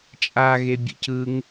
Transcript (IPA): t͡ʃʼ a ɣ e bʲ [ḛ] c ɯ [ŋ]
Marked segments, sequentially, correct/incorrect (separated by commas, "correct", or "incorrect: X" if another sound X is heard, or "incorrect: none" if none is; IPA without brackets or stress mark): correct, correct